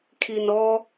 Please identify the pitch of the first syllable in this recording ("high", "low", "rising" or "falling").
low